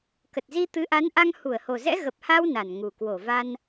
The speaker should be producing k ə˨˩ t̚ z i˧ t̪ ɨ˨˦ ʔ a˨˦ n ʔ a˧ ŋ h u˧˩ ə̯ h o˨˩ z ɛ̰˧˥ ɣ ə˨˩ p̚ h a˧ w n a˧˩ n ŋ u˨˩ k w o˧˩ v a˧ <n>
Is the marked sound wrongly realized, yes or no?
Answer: no